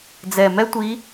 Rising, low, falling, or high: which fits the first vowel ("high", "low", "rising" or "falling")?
low